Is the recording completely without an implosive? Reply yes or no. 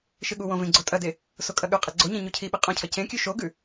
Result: no